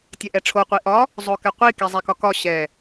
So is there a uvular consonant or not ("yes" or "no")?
yes